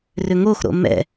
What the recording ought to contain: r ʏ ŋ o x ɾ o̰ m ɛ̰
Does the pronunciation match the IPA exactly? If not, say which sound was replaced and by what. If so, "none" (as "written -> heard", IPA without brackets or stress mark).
none